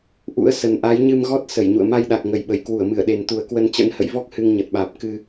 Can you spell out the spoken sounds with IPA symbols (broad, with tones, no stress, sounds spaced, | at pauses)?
ʔ ṵ˧˥ ə̯ s ə˨˩ n ʔ a˨˦ j ɲ ɨ˧ m ɣ ɔ˦˥ t̚ s ə˧˩ j ɲ ṵ˧˨ ə̯ m a˧ j ɗ a˨˩ k̚ ŋ ə˨˩ j ɓ ə˧˩ j k w u˧˩ ə̯ m ɨ˧˩ ə̯ ɗ e˨˩ n t̪ u˨˩ ə̯ k w ə˧ n t͡ɕ ə̰˧˥ n h ə̰˧˨ j v ɔ˦˥ k̚ h ɨ˧ ŋ ɲ ə˨˩ t̚ ɓ aː˨˩ p̚ k ɨ˧